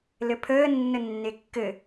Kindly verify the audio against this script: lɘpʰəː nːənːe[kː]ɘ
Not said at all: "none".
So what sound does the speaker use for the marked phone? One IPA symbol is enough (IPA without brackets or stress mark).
kː